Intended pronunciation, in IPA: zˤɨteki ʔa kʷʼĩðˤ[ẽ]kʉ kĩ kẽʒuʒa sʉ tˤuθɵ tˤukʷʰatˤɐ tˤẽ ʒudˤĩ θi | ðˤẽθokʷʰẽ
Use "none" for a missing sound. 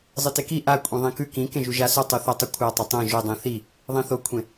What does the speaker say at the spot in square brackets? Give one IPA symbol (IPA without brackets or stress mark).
ĩ